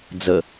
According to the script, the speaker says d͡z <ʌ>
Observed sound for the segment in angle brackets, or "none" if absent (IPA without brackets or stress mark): ə